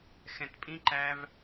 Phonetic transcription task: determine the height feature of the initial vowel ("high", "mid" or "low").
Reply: mid